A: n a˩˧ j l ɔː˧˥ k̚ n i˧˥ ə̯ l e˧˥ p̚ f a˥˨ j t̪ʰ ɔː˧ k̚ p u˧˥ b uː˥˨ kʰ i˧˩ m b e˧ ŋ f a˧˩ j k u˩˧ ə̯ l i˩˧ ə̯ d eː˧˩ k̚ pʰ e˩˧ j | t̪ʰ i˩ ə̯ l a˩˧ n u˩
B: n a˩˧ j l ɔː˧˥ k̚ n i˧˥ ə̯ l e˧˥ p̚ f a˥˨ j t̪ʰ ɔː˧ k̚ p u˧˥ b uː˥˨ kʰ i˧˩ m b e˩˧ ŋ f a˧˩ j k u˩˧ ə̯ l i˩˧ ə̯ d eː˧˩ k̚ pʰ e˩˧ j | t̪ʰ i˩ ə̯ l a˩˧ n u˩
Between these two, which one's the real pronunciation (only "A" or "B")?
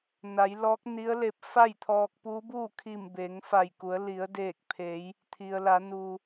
B